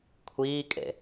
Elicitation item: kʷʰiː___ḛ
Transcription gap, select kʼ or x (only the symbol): kʼ